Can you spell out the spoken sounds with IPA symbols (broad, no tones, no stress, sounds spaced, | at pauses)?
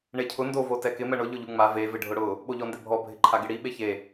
ɳ e cʰ ʊ n d o v o t ɛ k ɪ m ɛ ɳ ʊ ʎ ʊ ʎ u ŋ͡m a v e v ɪ ɖʱ ʊ ɽ ʊ | ɓ o ʎ ɔ n d ɪ bʱ ɔ bʱ ɪ ǃʰ a ɡ ɪ ɽ i ɓ e ç e